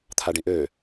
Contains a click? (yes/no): no